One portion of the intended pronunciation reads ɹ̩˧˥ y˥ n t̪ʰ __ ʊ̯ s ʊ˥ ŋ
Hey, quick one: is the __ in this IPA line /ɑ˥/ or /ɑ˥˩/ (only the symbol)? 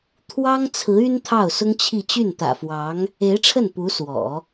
ɑ˥˩